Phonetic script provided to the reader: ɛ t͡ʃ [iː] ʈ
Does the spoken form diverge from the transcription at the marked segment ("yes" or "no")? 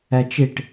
yes